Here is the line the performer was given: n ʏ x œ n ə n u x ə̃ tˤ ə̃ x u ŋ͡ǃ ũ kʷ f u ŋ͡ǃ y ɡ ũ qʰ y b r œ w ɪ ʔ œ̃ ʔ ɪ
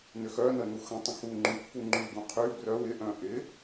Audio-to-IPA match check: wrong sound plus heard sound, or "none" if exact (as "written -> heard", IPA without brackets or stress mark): none